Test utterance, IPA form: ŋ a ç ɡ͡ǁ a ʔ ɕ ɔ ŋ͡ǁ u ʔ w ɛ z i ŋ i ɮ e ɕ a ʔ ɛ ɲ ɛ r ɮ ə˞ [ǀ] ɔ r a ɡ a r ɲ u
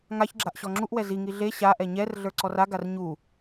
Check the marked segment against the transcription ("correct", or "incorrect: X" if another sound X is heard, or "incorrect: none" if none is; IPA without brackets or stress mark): correct